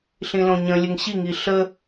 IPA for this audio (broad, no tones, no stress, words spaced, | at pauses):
ɬĩlõɲə̃ lʲəŋɕiŋi ɬə